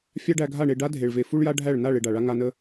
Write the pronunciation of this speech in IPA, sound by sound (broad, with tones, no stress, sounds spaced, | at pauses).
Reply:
fʲ a˦ ɖ æ˧ ɡʱ a˦˨ ɳ e˧ ɖ a˦ dʱ e˨ ɭ v e˨ f u˧ ɭ j a˧ ɖʱ æ˦˨ ɭ n a˦˨ ɭ e˧ ɖ a˨ ɭ a˦ ŋ a˧ n ə˧